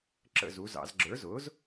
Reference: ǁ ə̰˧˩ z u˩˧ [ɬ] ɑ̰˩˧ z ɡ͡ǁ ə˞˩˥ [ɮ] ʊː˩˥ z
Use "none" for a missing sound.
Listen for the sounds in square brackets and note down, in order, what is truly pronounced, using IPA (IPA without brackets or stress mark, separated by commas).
z, z